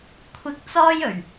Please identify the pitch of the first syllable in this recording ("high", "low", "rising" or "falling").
low